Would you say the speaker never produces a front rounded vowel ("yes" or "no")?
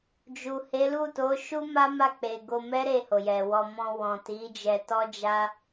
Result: yes